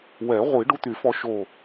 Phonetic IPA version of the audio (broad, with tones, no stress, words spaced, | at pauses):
wɛ˨˩˦ʁʷi˨˩˦ ɖu˦˥t̪y˨˩˦fɔ˧ ʃo˧˩